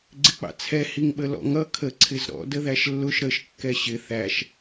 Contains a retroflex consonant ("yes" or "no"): no